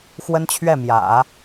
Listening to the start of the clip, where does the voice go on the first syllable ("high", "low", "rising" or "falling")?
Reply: high